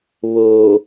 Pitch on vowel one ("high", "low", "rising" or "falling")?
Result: low